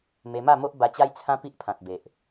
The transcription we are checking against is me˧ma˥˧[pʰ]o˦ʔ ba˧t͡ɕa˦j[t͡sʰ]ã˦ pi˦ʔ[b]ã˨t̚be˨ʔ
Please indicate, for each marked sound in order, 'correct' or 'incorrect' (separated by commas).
incorrect, correct, incorrect